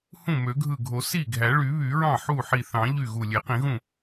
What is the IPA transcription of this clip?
hũ˥˩mø˨˩˦ɡʱɯ˧˩ɡʱo˨˩˦ si˥˩ ɡʱæ˨˩˦ɭy˨˩˦βy˨˩˦ɹɑ̃˥˩ ħu˥˩ħi˧˩ θɑ̃˨˩˦ ʎy˥˩ɣu˧˩ lʲe˨˩˦qĩ˨˩˦ɣũ˥˩

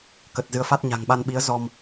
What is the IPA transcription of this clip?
kə˨˩t̚ zɨ˨˦ə̯fa˦˥t̚ɲa̤˨˩ŋɓa˧n ɓi˨˦ə̯ zɔ˧m

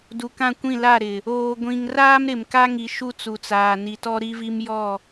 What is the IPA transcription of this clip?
du˨kã˦˨kʷĩ˦˨ la˦˨ɾɪ˨ | oː˨ɡʷĩ˨ŋ raː˦mɾɪ˨mka˦ŋi˨ ʃu˦t͡su˨t͡saː˨ni˨ tɔ˦ɾi˦vi˦m jɔ˦˨

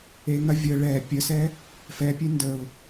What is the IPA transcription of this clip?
eŋɐ vʲə ɭɛ pʲəsɛ | fɛpʲe ndəʊ̯

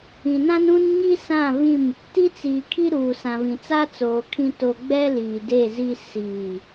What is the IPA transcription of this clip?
ĩ˨nã˦nũ˦n ɲi˦sã˦˨vĩ˦˨m | ti˦t͡siː˨kʰi˦ ɾuː˨ sã˨vĩ˨t͡sa˦ t͡soː˨kʰĩ˦to˦ ɡ͡bɛ˦ liː˨de˦˨zi˦ siː˦˨

